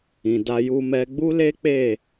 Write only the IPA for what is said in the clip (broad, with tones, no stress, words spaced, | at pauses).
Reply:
ĩ˨da˧ju˧mɛ˧ ɡ͡bu˦le˦ k͡pe˦˨